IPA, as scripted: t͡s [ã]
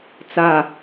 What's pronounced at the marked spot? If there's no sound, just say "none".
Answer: a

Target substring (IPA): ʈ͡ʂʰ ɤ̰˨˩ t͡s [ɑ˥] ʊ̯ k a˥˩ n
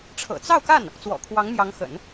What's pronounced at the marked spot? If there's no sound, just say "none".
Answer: ɑ˥˧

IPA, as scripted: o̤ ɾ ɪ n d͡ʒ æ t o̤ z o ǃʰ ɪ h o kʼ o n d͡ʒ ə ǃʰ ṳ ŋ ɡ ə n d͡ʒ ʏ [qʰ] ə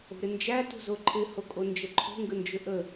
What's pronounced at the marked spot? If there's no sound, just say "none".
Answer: ʔ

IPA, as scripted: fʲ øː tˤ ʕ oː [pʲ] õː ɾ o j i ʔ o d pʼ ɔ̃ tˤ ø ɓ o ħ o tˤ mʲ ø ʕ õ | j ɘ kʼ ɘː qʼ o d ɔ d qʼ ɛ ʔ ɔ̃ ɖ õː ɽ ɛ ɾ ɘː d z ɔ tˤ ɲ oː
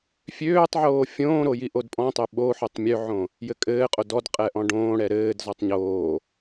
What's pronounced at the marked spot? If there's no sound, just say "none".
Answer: fʲ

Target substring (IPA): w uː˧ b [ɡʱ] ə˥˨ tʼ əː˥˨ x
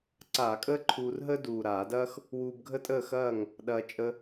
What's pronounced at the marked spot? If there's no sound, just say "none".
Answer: ɡʱ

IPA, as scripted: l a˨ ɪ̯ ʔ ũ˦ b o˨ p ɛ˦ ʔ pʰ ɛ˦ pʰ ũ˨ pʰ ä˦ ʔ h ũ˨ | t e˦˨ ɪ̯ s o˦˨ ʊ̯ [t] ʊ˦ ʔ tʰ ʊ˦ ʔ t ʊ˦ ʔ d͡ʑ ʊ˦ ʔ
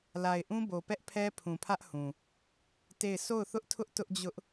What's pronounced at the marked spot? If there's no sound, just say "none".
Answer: θ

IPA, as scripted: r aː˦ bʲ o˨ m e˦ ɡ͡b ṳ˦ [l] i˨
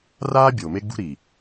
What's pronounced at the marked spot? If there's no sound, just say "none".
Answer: ɾ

